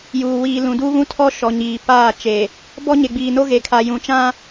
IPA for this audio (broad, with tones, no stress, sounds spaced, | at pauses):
j uː˨ w iː˨ l ũ˨ d uː˦ β ũ˦ tʰ ɔ˦ ʃ ɔ˨ ɲ iː˨ p aː˦˨ t͡ʃ e˨ | b ɔ˦ ɲ e˨ ɡ͡b iː˨ n o˦ ɣ e˨ kʰ a˨ j ũ˨ t͡ʃ ã˦